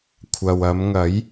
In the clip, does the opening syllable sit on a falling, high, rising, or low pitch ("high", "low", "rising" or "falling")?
low